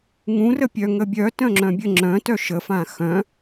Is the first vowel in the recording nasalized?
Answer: yes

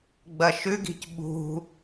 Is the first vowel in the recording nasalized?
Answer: no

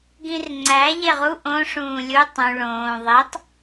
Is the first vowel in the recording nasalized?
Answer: yes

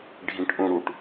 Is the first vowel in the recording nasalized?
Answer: yes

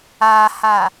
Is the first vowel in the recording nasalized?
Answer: no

